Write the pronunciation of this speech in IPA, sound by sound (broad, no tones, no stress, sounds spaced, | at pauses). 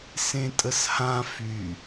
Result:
s ẽ tʼ ə s h ã f y